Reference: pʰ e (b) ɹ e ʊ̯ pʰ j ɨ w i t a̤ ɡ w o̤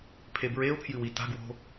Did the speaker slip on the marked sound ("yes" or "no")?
no